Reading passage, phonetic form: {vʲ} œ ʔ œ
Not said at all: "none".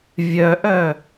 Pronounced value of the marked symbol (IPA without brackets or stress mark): vʲ